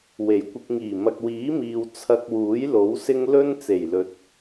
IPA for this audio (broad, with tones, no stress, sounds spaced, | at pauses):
w e˨˩ j kʷ ɪ˧ k̚ ŋ iː˨˩ m ɐ˨ k̚ w iː˨˥ m iː˨ w t͡sʰ ɐ˧ k̚ w uː˨˥ j l o˨˥ w s ɪ˥ ŋ l ɵ˥ n t͡s e˨˩ j l ɵ˨ t̚